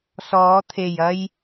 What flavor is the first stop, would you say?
aspirated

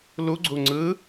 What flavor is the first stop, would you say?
click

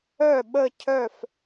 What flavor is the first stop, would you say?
implosive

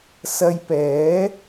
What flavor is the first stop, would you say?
plain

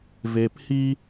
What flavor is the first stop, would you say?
plain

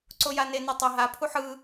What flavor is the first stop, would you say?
click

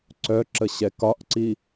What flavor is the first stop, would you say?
click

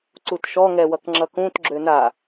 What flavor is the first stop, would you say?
click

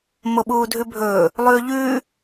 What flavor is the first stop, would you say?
implosive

